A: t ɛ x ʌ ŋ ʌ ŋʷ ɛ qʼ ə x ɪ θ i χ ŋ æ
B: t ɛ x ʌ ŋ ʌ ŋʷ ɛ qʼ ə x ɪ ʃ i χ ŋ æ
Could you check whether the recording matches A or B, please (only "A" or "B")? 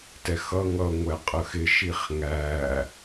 B